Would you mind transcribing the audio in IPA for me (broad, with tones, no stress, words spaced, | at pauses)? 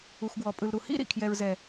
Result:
u˨xɡwɔ˨pʼɯ˨lɾu˨ hḭ˦ɾḭ˨kʰjɛ˨ɹzɛ˨